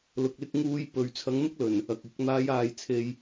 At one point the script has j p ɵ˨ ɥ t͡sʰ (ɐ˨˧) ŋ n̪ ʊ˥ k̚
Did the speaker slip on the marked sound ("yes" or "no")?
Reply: no